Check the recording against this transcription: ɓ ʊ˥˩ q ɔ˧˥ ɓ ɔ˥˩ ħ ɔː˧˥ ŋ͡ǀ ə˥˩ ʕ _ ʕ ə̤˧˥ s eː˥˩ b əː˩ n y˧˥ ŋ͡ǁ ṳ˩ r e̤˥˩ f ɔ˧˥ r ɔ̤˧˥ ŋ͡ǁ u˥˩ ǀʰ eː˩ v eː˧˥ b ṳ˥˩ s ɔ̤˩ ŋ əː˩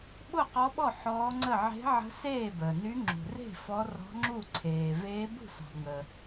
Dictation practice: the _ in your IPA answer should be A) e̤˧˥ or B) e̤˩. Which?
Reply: A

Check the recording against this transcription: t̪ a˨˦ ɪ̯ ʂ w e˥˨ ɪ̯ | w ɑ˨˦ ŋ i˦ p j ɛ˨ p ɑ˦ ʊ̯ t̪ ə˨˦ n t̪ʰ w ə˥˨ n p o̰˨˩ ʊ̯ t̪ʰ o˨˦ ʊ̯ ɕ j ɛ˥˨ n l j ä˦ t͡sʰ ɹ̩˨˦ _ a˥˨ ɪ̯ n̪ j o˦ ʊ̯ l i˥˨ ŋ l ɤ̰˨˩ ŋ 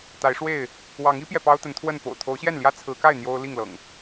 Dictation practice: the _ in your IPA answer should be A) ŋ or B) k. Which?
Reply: B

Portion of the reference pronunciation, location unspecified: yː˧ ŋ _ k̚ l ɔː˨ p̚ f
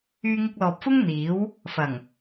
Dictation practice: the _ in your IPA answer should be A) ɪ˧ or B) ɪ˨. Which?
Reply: A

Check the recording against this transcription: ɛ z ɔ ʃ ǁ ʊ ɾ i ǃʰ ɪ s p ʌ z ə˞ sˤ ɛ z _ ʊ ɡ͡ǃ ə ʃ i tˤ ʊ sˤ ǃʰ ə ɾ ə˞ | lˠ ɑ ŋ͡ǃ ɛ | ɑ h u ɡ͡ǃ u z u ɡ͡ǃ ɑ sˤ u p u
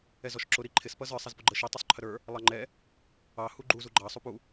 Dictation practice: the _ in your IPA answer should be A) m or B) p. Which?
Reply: B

